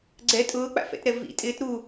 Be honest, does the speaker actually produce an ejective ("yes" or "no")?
yes